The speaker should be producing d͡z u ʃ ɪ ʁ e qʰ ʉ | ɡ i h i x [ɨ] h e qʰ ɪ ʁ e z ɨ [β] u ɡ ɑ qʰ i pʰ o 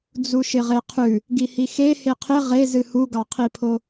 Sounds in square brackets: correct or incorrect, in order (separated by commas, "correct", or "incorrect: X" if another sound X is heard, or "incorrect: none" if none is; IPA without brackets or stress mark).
incorrect: e, incorrect: h